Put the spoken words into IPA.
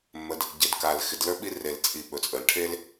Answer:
mː ə˩ d | ɟ ɪ˩ d k a˩ l x ɪ˩ d l ə˞˥ ɓ i˥ r e˩ l t͡sʼ i˩ ɓ ɵ˩ t͡sʼ ə˩ l ʈʰ e˥ l

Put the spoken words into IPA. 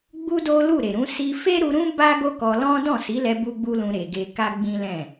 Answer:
ɡ͡b u˦ d o˦ l u˦˨ ɾ e˨ ɾ ũ˨˦ s i˧ f e˦ ɾ u˧ ɾ ũ˦ b a˦ ɡ o˦ k ɔ˧ l ɔ̃˦ d ɔ̃˦˨ s i˨˦ l ɛ˧ b u˦ ɡ͡b u˦ l ũ˧ ɾ e˨ ɡ e˧ k a˦ ɡ͡b ĩ˦ l ɛ̃˦˨

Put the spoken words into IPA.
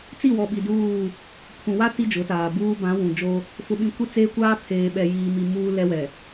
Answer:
t͡s i˦˨ w ɔ˨ ɓ i˨ d uː˦˨ | pʰ ũ˨ w a˦ t i˦ d͡ʒ ʊ˨˦ t aː˨ b uː˦ b ã˨˦ w ũ˨ d͡ʒ o˦ | f ʊ˨ ɓ ĩ˨ kʷ i˦ t͡s eː˦ kʷ aː˦ pʰ eː˨ ɓ ɛ˨ j iː˨ m i˨ m uː˦ l ɛ˦ w ɛ˨

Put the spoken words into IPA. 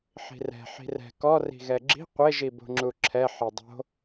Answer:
ħ i̤ r ɛ̤ ħ i̤ r ɛ̤ k ɔ r i̤ ɣ ɛ ɡ͡ǁ i̤ qʷ e ʒ i b o̤ ŋ͡ǁ u ǁʰ ɛ ħ e dˤ o̤

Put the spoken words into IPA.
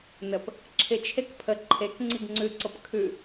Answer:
n ə p | ǁʰ ɪ t͡ʃʰ e k pʰ ə ǃʰ e k ŋ͡ǀ i ɡ ŋ͡ǀ ʉ ǀ ɤ p kʰ ʉ

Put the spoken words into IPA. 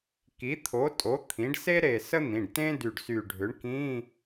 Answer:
k i˩˥ t̪ʰ o˩˥ tʼ o˩˥ t̪ʰ ĩ˩˥ ɖ s e˥ ɾ e˧˩ s ə˥ n̪ ĩ˩˧˩ ɖ t ẽ˥ d y˧˩ ɖ s y˧˩ ɖʱ ʏ˩˥ ɳ k ĩ˧˥˧

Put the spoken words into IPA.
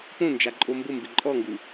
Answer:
p õ n d͡ʒ a ǃʼ o m b ʊ m b ɪ ǃʼ ɔ ŋ ɡ u

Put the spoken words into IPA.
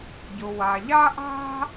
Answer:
ɟ ʊ˩ w a˩ ʎ a˥ ʔ a̤˥

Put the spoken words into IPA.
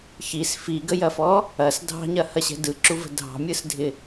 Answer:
ç i s f i ɡ ə j ɐ f ɔ | ɐ s dʱ ɑ̤ ɲ ɐ h ɐ ɕ ɛ̤ d ɯ ǁ u v ə̤ dʱ ɑ̤ mʲ ɯ s dʱ ɪ

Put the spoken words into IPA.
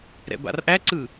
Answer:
ɾ ɛ̰ b a̰ r ʔ æ ǀ ɯ

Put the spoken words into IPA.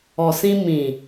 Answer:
ɔ˨ s ĩ˧ m ĩ˨

